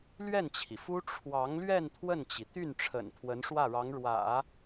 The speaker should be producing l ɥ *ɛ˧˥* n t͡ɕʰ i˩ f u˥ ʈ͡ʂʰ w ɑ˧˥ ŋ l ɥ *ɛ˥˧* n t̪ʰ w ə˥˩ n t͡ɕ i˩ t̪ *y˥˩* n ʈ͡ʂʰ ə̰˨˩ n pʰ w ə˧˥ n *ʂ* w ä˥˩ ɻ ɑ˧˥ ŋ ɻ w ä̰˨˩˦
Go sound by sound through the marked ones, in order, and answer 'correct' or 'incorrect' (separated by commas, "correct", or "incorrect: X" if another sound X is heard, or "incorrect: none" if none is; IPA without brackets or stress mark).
incorrect: ɛ˥˩, correct, correct, correct